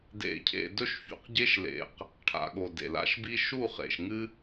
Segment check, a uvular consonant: present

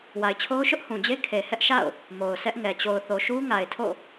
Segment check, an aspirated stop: present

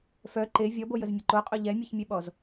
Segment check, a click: present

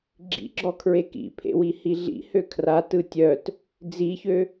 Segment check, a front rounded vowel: present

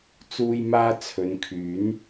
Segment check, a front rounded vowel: present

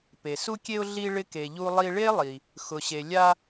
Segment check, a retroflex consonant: present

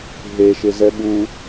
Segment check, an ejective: absent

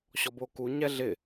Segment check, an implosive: absent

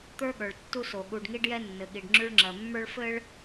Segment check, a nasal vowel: absent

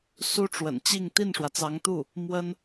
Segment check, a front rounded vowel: absent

